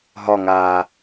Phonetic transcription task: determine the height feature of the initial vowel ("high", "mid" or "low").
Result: low